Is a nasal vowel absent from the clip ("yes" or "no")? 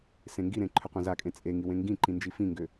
no